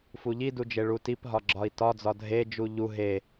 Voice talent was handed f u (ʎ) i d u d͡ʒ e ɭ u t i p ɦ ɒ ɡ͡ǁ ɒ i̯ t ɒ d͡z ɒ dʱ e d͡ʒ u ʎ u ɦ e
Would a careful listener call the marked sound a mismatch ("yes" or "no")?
no